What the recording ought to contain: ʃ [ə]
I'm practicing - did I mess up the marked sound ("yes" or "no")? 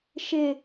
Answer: yes